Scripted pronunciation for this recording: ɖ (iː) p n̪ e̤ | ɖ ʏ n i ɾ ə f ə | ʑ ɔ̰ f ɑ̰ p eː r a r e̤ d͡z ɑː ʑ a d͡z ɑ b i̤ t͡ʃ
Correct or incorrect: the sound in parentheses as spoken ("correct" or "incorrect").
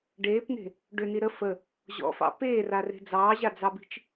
incorrect